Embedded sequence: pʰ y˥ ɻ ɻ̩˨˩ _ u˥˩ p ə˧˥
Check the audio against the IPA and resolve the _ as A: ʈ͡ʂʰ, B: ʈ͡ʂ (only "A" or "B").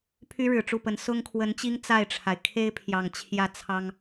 B